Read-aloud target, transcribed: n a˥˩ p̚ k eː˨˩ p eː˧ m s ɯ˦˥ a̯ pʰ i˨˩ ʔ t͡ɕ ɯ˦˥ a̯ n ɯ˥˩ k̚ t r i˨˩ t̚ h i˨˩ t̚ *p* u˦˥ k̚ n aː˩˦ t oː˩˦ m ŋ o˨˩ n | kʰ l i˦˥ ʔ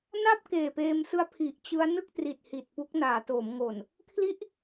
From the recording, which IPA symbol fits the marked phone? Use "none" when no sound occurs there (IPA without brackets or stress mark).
p